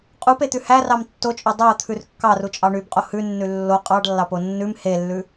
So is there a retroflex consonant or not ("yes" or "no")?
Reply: yes